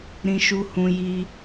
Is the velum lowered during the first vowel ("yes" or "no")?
yes